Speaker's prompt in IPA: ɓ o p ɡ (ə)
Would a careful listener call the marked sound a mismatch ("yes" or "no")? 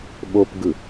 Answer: yes